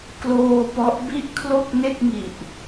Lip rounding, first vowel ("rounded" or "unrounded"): rounded